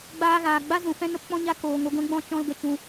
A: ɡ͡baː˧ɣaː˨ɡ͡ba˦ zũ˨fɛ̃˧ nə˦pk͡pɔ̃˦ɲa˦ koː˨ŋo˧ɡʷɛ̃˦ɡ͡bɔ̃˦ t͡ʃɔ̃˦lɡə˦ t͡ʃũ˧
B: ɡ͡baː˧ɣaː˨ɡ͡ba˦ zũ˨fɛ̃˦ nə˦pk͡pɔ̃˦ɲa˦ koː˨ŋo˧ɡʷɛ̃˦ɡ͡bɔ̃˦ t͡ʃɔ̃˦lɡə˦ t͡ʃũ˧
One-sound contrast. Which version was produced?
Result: B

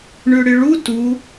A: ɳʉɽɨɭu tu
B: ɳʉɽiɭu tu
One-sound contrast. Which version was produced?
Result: A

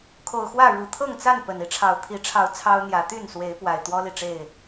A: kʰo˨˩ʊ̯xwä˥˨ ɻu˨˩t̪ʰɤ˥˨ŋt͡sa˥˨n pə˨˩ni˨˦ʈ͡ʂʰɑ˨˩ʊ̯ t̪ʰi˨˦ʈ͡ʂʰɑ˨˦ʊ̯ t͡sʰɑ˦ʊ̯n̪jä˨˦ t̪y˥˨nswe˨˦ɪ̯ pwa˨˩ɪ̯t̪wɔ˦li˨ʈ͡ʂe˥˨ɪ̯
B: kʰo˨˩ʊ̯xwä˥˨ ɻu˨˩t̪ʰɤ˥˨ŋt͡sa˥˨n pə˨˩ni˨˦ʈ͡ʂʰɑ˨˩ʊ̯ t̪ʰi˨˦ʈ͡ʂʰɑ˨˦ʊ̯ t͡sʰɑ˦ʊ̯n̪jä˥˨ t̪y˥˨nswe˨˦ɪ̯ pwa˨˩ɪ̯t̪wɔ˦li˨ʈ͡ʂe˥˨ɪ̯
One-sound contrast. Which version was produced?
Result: A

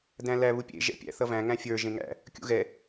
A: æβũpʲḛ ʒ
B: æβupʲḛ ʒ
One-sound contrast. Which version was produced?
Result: B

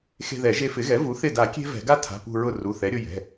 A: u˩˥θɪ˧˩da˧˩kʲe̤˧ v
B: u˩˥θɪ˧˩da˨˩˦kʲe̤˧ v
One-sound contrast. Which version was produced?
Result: B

